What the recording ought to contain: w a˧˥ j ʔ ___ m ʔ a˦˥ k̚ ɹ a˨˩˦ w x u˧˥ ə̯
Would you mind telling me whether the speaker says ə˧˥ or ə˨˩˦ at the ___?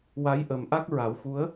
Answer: ə˨˩˦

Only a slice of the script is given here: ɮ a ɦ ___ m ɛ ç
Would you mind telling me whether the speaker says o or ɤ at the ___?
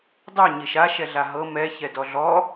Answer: ɤ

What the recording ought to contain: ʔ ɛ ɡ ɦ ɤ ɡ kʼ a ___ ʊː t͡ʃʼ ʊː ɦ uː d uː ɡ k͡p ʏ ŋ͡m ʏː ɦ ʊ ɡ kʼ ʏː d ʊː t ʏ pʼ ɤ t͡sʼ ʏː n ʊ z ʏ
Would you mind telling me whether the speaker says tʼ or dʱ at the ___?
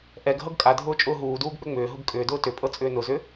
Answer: dʱ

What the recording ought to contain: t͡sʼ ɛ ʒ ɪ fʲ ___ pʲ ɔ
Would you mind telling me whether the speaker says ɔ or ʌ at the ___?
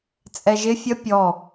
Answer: ʌ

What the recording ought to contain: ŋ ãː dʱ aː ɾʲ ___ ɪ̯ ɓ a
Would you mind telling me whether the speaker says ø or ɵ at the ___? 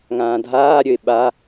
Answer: ø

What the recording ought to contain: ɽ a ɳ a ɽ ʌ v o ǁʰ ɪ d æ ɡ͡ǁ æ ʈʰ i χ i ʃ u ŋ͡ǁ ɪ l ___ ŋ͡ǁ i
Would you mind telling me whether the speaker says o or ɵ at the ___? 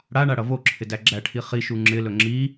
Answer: ɵ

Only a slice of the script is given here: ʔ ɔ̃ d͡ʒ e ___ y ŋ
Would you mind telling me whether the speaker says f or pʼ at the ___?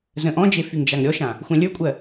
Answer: f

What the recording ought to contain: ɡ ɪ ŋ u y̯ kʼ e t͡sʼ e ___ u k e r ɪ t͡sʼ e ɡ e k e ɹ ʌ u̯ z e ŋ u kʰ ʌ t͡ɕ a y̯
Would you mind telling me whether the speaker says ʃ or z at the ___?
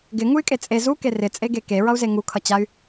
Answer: z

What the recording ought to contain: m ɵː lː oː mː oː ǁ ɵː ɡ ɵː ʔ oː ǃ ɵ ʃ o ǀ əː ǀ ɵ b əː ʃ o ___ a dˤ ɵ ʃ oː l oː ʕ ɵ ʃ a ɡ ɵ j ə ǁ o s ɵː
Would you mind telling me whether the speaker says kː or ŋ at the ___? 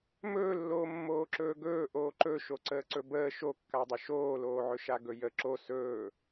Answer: kː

